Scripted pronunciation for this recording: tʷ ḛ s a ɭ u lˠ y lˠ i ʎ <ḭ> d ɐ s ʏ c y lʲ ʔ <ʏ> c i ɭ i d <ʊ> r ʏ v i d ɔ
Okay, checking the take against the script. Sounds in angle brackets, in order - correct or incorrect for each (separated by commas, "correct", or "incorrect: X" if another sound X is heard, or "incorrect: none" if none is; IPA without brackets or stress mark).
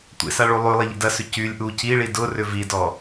correct, incorrect: u, correct